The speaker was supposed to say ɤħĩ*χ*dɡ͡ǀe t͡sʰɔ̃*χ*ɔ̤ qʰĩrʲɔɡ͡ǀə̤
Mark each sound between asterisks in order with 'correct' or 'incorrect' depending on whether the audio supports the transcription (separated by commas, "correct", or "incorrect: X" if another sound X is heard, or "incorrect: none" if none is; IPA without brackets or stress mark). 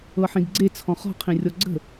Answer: incorrect: none, correct